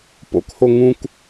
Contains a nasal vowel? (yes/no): yes